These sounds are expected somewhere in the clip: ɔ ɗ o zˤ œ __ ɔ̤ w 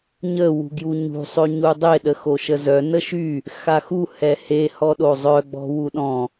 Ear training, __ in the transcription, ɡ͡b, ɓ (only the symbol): ɡ͡b